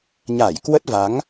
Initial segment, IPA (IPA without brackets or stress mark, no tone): ɲ